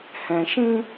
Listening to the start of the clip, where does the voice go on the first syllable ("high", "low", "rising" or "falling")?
low